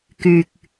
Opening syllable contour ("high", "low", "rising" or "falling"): low